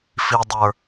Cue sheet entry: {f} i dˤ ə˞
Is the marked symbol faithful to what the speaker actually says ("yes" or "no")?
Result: yes